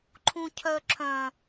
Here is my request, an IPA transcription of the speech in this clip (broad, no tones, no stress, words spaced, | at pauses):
ǃʰũcʰœǁʰœ̃